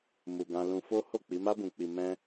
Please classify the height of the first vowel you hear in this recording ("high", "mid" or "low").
high